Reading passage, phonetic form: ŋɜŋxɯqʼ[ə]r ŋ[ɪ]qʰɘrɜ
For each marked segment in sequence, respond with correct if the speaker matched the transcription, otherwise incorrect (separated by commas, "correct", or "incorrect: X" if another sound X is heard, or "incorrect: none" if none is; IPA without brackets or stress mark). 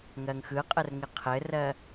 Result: correct, correct